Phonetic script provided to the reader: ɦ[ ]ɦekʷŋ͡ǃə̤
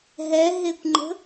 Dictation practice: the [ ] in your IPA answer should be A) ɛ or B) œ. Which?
A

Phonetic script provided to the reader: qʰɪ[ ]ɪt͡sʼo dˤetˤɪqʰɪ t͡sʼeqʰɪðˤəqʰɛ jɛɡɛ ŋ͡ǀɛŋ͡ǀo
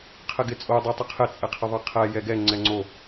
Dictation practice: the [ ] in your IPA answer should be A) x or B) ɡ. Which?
B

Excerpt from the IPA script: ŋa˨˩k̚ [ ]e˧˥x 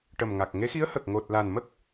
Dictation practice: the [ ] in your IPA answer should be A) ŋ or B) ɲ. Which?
A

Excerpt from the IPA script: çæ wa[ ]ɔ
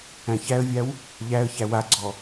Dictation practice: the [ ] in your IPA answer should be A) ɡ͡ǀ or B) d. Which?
A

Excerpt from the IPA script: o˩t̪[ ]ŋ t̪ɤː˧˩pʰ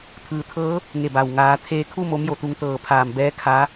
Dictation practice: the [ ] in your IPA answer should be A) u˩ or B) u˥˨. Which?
A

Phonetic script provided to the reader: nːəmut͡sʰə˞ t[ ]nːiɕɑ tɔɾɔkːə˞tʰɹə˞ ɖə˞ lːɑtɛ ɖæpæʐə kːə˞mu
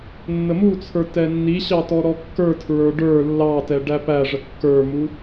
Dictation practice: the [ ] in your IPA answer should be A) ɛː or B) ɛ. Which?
B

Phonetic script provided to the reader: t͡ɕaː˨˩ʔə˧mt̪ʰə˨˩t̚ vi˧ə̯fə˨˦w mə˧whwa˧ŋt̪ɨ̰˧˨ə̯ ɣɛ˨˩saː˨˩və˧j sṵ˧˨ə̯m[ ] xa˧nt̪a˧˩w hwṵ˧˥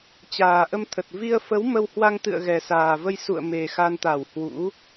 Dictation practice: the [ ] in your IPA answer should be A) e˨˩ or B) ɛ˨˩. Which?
A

